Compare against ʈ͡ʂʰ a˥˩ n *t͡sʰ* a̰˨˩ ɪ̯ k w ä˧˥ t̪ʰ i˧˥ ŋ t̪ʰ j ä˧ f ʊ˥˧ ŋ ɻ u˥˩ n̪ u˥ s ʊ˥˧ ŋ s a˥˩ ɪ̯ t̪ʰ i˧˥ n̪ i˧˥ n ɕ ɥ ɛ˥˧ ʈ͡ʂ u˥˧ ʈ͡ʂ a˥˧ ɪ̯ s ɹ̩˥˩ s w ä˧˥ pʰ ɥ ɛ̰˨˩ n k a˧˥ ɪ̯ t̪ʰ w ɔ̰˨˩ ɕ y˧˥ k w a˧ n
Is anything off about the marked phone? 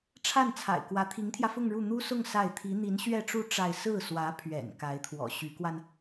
no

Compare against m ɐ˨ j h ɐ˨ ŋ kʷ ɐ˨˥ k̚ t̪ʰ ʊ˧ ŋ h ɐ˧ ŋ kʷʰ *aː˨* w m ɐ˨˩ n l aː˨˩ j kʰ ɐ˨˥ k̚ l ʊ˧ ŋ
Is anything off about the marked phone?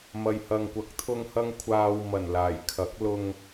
no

